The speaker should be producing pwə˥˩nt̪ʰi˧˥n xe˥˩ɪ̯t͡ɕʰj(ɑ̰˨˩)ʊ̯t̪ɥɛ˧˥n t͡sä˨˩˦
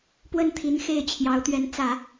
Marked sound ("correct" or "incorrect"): incorrect